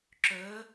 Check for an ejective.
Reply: absent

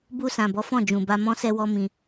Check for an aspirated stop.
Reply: absent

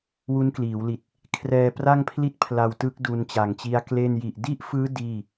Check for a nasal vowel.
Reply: absent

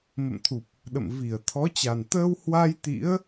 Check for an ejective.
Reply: absent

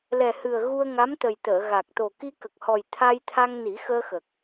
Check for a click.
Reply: absent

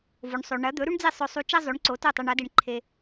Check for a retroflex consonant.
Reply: present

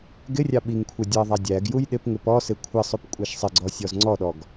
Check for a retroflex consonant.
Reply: absent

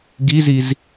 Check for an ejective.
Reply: absent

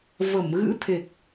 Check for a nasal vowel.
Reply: absent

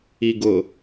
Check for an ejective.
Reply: absent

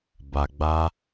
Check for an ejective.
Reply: absent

